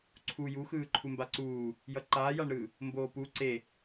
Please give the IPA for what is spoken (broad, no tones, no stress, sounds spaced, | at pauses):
ǀʰ u j u x ɯː ǃʰ u m b a ǀ uː | j ʌ ǃ aː j a ɳ ɾ ɯː | m b oː p u ǀ e